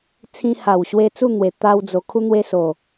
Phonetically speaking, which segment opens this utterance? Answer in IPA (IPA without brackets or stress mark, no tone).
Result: t͡sʰ